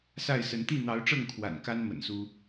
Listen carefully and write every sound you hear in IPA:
sa˥˨ɪ̯sə˨˦n t̪i˥˨n̪ɑ˨˦ʊ̯ʈ͡ʂɤ˥˨ŋ kʰwa̰˨˩nka˦n mə̰˨˩nsu˦

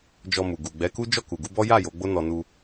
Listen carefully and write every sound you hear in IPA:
d͡ʒɔ˧mu˨ ɡu˨ ɡ͡bɛ˨˦ku˦ d͡ʒɔ˦˨ku˨ɡu˨˦bɔ˦ ja˦˨ jo˨˦ɡ͡bo˦nɔ˧ nu˧

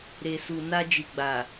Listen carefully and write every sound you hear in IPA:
ɾe˨su˨ na˧d͡ʒi˨ɡ͡ba˨

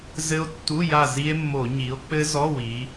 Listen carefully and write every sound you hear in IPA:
zɘ˦˥o̯tːu˧˥˧ja˦˨ zi˦˥e̯mːo˧˩˧ɲi˩˥o̯ k͡pɘ˦˥zɔ˧˥˧wi˩˧

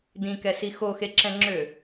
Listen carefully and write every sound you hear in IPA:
dĩkɛsi xoxeǁɛ̃ŋ͡ǁø

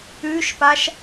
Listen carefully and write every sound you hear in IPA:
ʉʃpaʃ

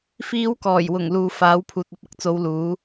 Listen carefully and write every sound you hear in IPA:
fiː˨˧wkɔː˨˩jwʊ˨˩ŋ luː˨faː˨˥w pʰuː˨t̚ɐ˧p̚ɐ˧k̚t͡so˨˧w luː˨˥

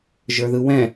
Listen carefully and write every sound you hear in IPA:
ʒə˞ðɯwɛ̃

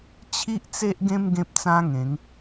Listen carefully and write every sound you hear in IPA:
t͡ɕʰi˦ʔt͡se˦ʔɡẽ˦m ɡẽ˦p̚t͡sã˦ŋẽ˨˦ŋ

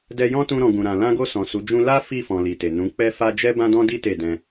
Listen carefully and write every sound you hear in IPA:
dɛ˧jɔ̃˦ tũ˧ɾɔ̃˨ ɡũ˨ɾã˨ lã˧ɡo˧ sɔ̃˨su˨˦d͡ʒũ˦ la˦ fi˦˨fɔ̃˨ li˨te˨ nũ˨˦ k͡pɛ˦fa˦ d͡ʒɛ˦ bã˦dɔ̃˦di˦ te˦˨dɛ̃˧

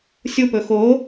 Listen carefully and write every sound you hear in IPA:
sʲupɵ xo

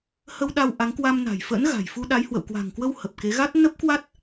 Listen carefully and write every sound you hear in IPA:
hə˧w ɗa˧wʔa˨˦ŋkwa˧m na̤˨˩jfə̰ː˧˥n ɣa̤˨˩jfu˧ ɗa˨˦jhwə̰˧˨w kwa̤˨˩ŋkwə˧w hə˨˩p̚ke˨˦ɣa˦˥t̚ nə˦˥p̚kwa˦˥t̚

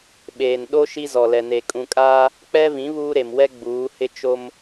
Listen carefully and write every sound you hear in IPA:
ɓeː˨nɗo˦ ʃi˦zɔ˨lɛ˨ ne˨kʼũ˨kʼaː˦ | k͡pɛ˦vĩ˨˦ βuː˦ɾe˨mwɛ˦ ɡ͡buː˨˦hɪ˦ t͡ʃo˦m

